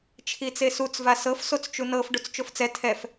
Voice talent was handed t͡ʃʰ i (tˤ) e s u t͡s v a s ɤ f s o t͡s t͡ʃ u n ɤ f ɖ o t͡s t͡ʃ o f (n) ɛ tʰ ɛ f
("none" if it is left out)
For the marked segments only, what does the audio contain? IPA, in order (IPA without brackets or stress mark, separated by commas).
t͡s, t͡s